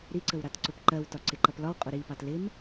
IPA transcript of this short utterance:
ɾ i ǀ ə w ɾ ɑ t ǀ ʊ p ǃ ɜ w t ɒ ǀ ɪ ǃ ʌ p l ɒ w qʼ ʊ ɾ i p ɑ t l ɪ m

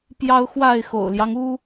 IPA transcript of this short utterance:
p j ɑ˦ ʊ̯ x w a˥˨ ɪ̯ x o̰˨˩ ʊ̯ l j ɑ˦ ŋ u˦

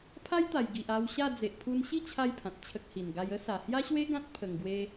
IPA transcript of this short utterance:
pʰ a˦ j t̪ a˨˩ j ɡ i˨ ʔ a˧ w ɕ a˥˧ d͡z e˨ ʔ pʰ u˧ n ɕ i˥˧ t͡ɕʰ a˧ j pʰ ã˨ t̚ t͡ɕʰ ə˦ k̚ h i˨˩ n ɡ a˦ j ə˦ s a˨˩ h j a˦ ɕ w e˦ ɡ ã˦ t̚ pʰ ə˨˩ ŋ ɡ w e˧

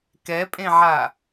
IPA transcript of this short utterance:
k ɛ pʼ ẽ ʕ a

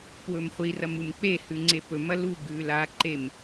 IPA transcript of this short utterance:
p w ɵ m χʷ i r ɐ m u m k͡p e h ʉ ŋ͡ǀ e p ɵ m ɐ l u ɡ ʉ l a ǃ e m

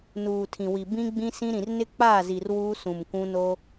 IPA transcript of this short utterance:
n uː˨ tʰ ĩ˨ w i˨ b ĩ˦ ɡ͡b ĩ˦ s ĩ˦ ɾ ĩ˨ r n ɪ˦ k͡p aː˦˨ z i˨ r w uː˦ s ũ˨ m kʷ ũ˦ n o˦

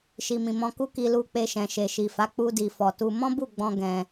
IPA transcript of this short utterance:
ʃ i˨ m ĩ˨ m ɔ̃˧ k u˦ k i˧ l u˧ k͡p e˧ ʃ ɛ̃˨ ʃ e˨ ʃ i˨ f a˨˦ k͡p u˧ d i˨ f ɔ˨ t u˧ m ɔ̃˦ b u˦˨ ɡ͡b ɔ̃˧ ɡ ɛ̃˧

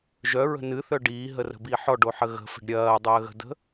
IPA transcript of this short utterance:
ʒ œ ɹ ə̤ n ɨ θ œ ɖ iː ɦ ə r ə̤ b i ħ ɔ ɖ o ħ ə ɣ ə̤ f ə̤ ɖ ɾʲ ɐː dˤ əː ɣ ə̤ d ə̤

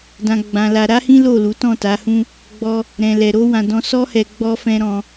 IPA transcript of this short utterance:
d ã˧ ɡ͡b ã˧ l a˧ ɾ a˦ h ĩ˦ l o˦˨ l u˨˦ t ɔ̃˦˨ t a˨˦ h ũ˦ | ɡ͡b ɔ˦ | ɾ ɛ̃˧ l ɛ˧ ɾ o˦ w ã˧ d ɔ̃˧ s ɔ˦ h ɛ˧ ɡ͡b ɔ˧ f ɛ̃˧ ɾ ɔ̃˦

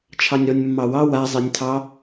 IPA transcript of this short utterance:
t͡ʃʰ ɑ nʲ ɾ ɔ nʲ mː ɑ w ɑ w a zˤ e nʲ tʰ ɑ

